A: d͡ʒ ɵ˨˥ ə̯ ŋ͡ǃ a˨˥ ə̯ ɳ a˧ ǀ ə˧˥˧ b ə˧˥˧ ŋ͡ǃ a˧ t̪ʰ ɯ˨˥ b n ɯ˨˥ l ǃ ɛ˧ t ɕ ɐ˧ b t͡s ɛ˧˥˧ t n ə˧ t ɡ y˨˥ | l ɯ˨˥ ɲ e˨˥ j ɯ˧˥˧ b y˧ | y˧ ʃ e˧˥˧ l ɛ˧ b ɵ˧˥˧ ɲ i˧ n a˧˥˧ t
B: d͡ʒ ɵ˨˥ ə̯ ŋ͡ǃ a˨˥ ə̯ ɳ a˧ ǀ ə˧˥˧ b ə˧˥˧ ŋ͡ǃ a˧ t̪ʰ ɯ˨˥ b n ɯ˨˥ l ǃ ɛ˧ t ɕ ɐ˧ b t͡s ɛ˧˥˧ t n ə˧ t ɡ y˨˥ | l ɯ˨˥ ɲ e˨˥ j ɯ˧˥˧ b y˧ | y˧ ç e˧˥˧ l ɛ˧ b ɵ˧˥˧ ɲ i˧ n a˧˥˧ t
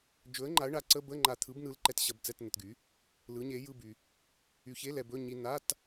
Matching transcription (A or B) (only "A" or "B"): B